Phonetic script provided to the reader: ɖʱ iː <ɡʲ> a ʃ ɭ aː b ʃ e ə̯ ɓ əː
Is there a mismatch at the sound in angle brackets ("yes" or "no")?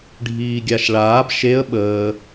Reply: no